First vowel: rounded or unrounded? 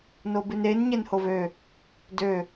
rounded